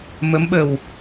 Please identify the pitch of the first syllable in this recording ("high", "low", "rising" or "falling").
rising